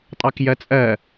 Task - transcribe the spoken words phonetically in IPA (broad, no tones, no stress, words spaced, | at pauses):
tʼɑkjɜt͡sʼɜ